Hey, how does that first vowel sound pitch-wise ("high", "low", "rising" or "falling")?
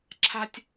high